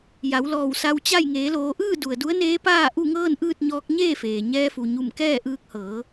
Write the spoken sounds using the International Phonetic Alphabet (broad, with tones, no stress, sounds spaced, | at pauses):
j a˩˧ w l ɔː˧˩ w s a˧ w t͡ɕ a˥˨ j ŋ eː˩˧ l oː˩˧ ʔ ɯː˥˨ d u˩ ə̯ d u˧˥ ə̯ n eː˧˥ p aː˥˨ ʔ u˥˨ ŋ ɤː˥˨ n ʔ ɯː˥˨ t̚ ɲ ɔː˧˥ k̚ ɲ eː˥˨ f eː˩ ɲ ɛː˧ f u˩ ɲ u˧˩ m k ɛː˥˨ ʔ ɯː˧ k̚ h ɤː˩˧